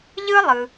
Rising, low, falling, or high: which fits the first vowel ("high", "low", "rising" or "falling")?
high